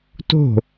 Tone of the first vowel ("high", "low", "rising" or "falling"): falling